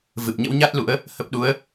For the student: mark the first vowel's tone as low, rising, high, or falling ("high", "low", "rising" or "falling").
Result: low